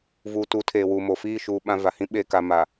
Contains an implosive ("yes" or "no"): yes